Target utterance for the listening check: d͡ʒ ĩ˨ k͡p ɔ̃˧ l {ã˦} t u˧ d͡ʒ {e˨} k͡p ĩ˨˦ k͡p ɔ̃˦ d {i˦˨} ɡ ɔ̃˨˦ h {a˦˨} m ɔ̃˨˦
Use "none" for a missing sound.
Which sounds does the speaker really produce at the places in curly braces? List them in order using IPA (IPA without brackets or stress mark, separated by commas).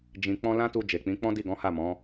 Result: ã˦, e˨, i˦˨, a˦˨